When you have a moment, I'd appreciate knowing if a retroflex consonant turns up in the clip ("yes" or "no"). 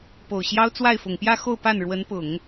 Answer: yes